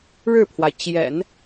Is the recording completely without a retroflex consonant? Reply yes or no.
no